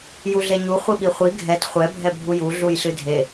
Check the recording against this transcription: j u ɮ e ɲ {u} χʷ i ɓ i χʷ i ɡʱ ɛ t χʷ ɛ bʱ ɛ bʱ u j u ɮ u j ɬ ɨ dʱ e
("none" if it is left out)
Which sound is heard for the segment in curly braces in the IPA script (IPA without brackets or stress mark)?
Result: u